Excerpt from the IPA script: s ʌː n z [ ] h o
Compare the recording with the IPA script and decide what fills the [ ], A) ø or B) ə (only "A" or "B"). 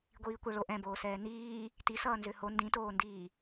A